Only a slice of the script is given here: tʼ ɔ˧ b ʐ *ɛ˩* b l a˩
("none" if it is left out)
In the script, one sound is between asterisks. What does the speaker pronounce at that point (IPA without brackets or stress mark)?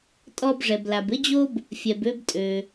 ɛ˩